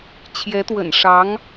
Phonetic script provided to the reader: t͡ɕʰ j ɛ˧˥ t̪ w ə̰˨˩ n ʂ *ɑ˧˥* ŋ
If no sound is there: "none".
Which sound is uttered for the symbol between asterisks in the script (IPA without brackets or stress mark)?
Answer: ɑ˧˥